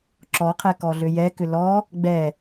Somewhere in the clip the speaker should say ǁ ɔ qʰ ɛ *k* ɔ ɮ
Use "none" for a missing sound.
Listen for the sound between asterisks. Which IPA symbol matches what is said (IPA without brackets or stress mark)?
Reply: k